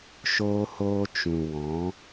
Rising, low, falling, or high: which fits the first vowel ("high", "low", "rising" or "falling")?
high